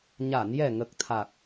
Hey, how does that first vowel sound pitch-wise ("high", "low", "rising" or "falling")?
low